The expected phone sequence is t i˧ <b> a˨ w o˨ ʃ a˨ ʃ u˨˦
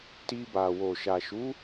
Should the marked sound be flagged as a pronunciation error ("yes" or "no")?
no